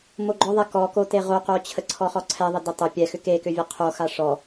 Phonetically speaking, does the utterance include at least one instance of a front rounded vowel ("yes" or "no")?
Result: yes